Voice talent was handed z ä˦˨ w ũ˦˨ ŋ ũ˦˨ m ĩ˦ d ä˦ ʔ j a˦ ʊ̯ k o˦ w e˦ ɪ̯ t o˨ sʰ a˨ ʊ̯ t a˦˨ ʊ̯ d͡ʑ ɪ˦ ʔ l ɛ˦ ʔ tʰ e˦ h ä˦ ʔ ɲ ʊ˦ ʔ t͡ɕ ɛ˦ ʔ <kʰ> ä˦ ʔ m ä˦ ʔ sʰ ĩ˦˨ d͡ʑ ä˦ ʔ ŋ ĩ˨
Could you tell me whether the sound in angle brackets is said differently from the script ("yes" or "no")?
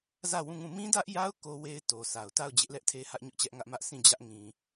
yes